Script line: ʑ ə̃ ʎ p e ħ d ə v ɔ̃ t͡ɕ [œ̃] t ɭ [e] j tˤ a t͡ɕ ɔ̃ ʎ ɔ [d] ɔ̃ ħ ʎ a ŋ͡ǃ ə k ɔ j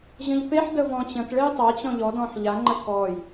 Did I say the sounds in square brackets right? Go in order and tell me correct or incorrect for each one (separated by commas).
incorrect, correct, correct